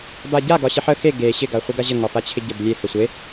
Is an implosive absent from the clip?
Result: yes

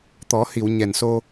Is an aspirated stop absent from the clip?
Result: yes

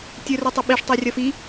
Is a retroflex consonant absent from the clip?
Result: no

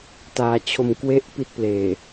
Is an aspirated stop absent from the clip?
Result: no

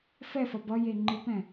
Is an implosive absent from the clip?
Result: yes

